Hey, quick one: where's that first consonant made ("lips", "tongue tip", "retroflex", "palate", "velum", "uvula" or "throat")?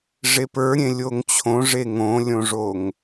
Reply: retroflex